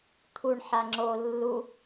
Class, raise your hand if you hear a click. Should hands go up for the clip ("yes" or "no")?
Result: yes